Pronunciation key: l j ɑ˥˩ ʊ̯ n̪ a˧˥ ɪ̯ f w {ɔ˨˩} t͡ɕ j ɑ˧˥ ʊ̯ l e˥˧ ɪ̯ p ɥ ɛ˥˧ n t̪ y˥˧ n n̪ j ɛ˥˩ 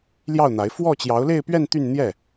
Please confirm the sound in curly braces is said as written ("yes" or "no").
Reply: no